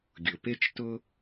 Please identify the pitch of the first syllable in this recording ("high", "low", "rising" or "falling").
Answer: low